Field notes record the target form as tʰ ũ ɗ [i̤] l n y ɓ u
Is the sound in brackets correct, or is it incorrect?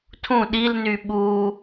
incorrect: i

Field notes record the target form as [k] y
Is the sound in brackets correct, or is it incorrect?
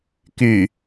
correct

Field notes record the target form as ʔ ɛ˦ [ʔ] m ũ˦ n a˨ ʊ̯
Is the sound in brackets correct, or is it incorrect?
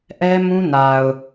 incorrect: none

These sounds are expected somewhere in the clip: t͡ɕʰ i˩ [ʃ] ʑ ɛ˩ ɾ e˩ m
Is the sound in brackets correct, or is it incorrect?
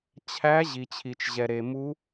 incorrect: t͡ʃ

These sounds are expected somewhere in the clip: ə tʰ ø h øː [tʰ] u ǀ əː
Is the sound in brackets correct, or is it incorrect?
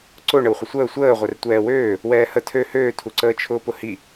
correct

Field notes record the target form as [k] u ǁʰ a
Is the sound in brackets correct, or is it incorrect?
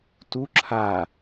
incorrect: t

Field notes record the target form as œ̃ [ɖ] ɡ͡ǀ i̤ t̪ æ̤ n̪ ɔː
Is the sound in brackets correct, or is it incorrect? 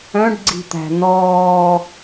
correct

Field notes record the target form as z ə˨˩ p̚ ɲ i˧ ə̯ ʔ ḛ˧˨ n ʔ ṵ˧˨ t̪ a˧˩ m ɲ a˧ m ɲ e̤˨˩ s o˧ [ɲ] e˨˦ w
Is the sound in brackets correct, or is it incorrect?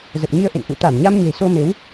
incorrect: m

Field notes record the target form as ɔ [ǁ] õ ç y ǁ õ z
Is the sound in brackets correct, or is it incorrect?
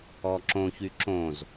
correct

